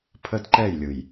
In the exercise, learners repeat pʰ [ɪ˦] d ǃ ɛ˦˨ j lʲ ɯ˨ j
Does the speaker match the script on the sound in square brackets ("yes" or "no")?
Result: no